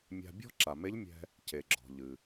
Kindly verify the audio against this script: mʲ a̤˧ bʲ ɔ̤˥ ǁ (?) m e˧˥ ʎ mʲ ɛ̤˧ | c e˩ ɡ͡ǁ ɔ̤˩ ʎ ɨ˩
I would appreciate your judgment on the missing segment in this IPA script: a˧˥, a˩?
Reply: a˩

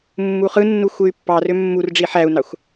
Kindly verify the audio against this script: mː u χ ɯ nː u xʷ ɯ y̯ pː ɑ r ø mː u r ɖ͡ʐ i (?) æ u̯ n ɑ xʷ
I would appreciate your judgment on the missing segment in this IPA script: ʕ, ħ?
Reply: ħ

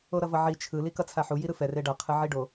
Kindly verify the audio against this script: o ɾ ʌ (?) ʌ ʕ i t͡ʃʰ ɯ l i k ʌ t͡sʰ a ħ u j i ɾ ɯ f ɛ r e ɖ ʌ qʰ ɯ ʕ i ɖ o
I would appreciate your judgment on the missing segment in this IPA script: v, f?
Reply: v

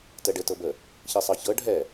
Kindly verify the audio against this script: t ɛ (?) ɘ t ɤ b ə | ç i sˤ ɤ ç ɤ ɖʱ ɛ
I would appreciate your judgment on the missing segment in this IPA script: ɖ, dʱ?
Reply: ɖ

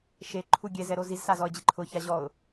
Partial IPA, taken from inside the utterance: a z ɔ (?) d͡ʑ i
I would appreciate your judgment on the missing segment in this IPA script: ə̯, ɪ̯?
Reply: ə̯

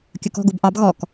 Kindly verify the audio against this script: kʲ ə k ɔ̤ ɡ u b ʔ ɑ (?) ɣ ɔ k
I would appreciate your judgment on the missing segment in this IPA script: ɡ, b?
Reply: b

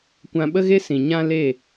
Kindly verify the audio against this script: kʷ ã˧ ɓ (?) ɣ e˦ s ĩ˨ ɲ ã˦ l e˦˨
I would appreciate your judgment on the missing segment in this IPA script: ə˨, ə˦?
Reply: ə˦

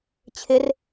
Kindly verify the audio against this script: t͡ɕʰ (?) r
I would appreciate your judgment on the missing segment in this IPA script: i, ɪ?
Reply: ɪ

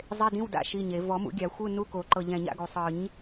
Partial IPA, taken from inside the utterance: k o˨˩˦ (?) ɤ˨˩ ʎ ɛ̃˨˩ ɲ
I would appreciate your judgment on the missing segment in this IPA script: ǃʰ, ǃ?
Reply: ǃ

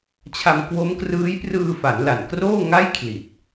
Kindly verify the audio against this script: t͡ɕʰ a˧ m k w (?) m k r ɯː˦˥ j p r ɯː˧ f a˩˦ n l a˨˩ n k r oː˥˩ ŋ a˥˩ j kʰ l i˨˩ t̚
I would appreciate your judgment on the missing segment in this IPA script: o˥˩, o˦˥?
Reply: o˦˥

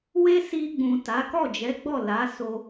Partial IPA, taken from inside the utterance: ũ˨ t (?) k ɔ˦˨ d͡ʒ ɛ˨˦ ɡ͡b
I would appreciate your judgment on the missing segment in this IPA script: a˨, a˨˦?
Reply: a˨˦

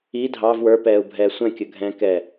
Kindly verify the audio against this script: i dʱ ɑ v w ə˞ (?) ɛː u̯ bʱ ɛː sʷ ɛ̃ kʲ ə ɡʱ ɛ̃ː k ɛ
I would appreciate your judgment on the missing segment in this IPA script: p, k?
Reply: p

